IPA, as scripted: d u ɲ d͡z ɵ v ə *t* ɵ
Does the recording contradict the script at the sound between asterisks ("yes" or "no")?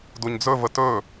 no